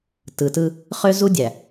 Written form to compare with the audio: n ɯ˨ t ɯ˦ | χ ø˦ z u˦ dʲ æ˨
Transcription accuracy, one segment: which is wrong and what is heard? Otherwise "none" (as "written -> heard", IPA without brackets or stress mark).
n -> t